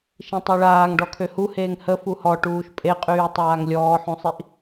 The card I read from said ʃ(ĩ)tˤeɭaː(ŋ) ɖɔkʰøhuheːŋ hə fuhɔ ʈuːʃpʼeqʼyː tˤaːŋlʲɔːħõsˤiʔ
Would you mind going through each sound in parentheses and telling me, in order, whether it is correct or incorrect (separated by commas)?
correct, correct